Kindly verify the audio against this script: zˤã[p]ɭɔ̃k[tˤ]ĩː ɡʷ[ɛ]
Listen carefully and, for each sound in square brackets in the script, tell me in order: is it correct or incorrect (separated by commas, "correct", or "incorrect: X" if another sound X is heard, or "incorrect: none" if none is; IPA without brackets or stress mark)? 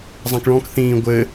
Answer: incorrect: k, incorrect: θ, incorrect: ɘ